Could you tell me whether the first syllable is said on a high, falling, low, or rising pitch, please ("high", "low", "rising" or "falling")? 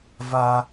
high